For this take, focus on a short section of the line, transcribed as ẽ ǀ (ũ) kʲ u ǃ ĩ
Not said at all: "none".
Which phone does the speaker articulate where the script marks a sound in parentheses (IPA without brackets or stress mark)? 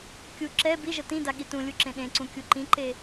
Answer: ũ